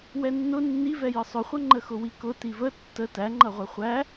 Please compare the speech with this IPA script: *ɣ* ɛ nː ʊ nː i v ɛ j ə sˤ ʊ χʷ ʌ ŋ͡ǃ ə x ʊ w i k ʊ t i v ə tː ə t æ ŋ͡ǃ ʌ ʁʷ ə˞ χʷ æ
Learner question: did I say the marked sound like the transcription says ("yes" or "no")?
no